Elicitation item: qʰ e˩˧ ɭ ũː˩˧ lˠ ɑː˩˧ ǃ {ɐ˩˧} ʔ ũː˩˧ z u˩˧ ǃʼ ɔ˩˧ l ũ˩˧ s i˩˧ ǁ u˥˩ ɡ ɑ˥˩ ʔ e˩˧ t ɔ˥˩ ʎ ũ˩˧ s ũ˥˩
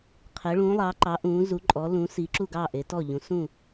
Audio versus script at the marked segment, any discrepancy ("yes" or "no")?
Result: yes